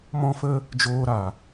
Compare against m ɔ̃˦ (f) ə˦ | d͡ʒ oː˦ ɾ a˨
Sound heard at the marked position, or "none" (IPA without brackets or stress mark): f